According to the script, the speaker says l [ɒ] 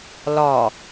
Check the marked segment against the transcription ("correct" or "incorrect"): correct